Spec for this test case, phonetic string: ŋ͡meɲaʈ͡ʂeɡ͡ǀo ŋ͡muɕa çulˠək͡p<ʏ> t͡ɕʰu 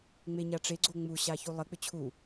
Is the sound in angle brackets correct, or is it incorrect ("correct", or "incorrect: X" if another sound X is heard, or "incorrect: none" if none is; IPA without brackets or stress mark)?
correct